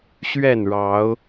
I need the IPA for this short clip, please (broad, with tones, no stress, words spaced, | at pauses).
ɕɥɛ˥˨nɻɑ˨˦ʊ̯